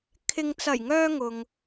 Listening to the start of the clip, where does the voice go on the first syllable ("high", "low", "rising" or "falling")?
low